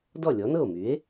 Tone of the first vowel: falling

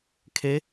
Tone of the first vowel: rising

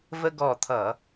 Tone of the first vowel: high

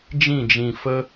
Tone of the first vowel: falling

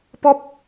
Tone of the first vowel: high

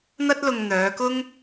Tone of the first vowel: high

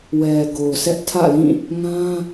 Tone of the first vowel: low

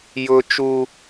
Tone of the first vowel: low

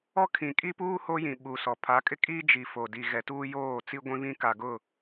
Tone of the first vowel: high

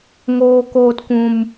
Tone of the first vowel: low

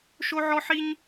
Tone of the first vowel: high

